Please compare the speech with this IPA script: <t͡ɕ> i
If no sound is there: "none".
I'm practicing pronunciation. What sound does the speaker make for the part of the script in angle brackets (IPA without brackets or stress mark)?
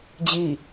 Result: d͡ʑ